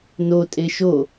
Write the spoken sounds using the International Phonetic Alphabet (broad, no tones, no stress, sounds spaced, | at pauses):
n o tʼ e ʃ o